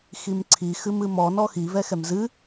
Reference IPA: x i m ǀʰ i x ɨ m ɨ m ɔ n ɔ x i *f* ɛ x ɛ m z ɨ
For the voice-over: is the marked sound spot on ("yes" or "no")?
no